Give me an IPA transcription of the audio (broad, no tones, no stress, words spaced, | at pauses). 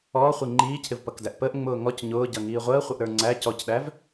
ɔːχʷi ŋ͡ǃiːcʰɪvpʌkdæʔ pəːʔŋ͡mʊː ŋɔc ɲʊːɟʌŋiː ʁʷəːχʷəʔɾə˞ ŋ͡ǀæ cɔcɗæv